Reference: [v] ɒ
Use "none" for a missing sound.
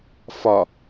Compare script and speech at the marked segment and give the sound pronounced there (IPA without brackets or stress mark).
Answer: f